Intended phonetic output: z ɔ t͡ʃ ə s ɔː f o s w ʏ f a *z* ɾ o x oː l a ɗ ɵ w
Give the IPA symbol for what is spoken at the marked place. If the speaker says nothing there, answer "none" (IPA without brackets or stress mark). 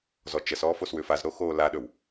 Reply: z